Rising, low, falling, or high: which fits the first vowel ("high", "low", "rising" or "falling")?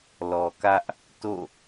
low